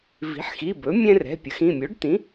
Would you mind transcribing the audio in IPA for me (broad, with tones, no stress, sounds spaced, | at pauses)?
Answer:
v i̤˩˥ ħ x i˩˧˩ b ɵ˩˥ mʲ ɛ̃˦ r ɛ̤˩˧˩ pʲ ə˩˥ x ĩ˩˧˩ mʲ o˩˥ ɖ t̪ ĩ˩˥